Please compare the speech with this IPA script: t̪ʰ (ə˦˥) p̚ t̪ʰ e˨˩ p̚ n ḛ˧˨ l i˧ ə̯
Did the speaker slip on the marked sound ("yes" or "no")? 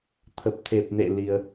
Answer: yes